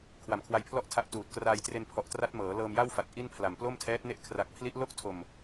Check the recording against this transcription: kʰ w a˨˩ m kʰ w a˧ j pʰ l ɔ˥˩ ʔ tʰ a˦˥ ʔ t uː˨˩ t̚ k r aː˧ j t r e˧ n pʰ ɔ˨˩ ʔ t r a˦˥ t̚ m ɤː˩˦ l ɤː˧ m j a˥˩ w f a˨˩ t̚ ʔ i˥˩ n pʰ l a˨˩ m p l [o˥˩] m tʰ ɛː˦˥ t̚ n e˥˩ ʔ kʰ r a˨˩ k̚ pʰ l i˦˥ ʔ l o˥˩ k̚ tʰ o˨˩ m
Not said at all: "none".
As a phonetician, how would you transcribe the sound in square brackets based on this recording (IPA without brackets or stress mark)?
o˥˩